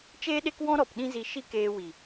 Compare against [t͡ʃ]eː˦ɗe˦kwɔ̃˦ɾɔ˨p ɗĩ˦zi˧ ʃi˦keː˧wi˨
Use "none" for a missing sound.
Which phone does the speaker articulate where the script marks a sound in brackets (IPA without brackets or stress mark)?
t͡ʃ